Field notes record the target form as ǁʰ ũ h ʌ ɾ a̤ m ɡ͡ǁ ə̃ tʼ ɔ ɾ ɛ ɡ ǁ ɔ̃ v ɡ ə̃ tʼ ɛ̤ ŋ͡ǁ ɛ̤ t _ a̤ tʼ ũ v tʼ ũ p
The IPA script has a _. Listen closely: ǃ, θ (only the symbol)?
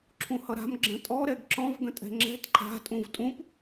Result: ǃ